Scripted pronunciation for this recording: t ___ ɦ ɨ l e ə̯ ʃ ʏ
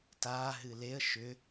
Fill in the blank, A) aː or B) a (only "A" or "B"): A